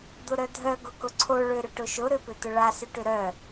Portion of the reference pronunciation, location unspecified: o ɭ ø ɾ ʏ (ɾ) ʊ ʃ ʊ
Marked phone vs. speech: incorrect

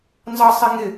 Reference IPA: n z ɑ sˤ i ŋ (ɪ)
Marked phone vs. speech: correct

